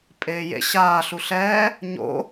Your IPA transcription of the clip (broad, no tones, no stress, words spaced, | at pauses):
pʼeːjḛ ɕaː ɬuɬɛː | ɲo̰